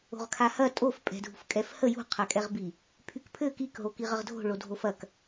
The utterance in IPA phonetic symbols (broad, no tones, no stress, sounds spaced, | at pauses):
o̤ ʁ kʰ a h ɐ tʼ o f pʼ ɛ̤ dʱ ṳ f kʼ ɛ f h ə j ṳ qʰ a kʼ ɛ ʁ b i | pʰ y k pʰ ɘ k i k ɦ o k i ʁ ə ʁ dʱ o̤ ɭ o dʱ o f ɐ k